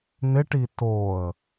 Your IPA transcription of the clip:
n ɪ ʈ i t o ə̯

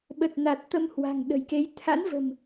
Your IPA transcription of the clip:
ɓ ə˨˩ t̚ n a˨˩ t̚ t̪ ə˧ m h w a̤˨˩ ŋ ɗ ə̤˨˩ j k e˨˦ j t̪ʰ a̰˧˥ n v ə̤˨˩ m

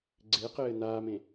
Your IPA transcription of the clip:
ɡ͡ǀ e q ɘː n̪ aː m ẽ

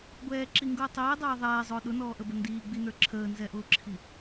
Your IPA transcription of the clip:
ɡʷ ɛː ǁ i ŋ ɡ ʊː tˤ iː dˤ ɛː ðˤ ɛː zˤ ʊː ɗ ʊ n ɔː ʔ ə b ə n d iː ɡ͡b i n ə˞ ǁʰ əː n z ɛ ʔ ʊː ǁʰ i

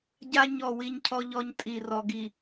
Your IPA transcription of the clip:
ɟ a˦ ɲ ɔ˦˨ w i˦ ɲ cʰ ɔ˦ ʎ ɔ˦ ɲ tʼ i˨ r ɔ˨ ɡ i˨

